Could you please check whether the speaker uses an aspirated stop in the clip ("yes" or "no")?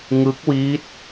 no